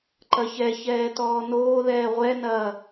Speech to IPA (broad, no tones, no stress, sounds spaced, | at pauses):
ǃ ɐ ç ɛ ç ɛː t ɔː n oː ð ɛː ʁʷ ɛ n ɐː